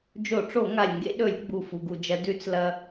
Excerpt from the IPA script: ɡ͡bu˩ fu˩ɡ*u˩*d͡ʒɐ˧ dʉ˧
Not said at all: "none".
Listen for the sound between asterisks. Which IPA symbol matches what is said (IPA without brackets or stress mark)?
u˩